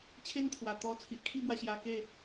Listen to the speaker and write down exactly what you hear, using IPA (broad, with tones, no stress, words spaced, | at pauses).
t͡ɕʰe˦nt̪ʰwa˨˩t̪ɔ˧ t͡sʰi˨ʔkʰi˥˧bwa˧ ɕja˧ke˥˧